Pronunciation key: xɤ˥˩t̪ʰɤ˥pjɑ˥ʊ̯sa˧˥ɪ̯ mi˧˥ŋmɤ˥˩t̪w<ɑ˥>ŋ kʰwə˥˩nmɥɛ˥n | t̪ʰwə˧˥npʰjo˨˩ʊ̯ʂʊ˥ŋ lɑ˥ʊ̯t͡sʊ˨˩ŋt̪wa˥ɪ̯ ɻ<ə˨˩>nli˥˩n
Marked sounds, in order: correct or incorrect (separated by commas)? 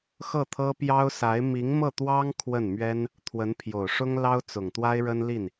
correct, incorrect